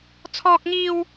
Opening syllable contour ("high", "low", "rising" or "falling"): high